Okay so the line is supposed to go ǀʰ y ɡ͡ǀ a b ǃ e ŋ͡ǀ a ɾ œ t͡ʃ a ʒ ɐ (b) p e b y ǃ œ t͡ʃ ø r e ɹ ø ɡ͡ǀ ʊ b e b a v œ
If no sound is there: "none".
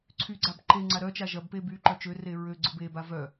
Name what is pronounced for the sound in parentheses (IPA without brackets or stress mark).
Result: b